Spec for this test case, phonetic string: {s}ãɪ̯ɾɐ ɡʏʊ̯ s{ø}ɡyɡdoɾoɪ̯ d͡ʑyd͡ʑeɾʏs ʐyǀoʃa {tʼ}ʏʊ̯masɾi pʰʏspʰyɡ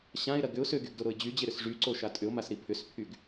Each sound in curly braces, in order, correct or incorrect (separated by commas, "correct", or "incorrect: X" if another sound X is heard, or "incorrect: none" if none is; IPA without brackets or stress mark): incorrect: ɕ, correct, correct